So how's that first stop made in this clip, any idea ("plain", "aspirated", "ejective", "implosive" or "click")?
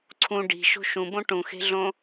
click